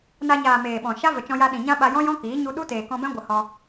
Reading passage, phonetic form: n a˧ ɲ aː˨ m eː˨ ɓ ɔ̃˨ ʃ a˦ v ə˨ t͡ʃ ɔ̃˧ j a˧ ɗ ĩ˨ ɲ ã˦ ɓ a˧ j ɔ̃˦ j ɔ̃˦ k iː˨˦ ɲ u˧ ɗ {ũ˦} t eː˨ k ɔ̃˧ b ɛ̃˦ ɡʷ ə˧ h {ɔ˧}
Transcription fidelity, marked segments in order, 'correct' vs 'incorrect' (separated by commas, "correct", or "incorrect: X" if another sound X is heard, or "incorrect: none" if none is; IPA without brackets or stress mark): incorrect: u˦, correct